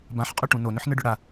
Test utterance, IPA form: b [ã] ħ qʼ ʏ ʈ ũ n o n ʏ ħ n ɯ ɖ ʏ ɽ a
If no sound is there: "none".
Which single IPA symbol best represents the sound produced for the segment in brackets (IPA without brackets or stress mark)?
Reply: ã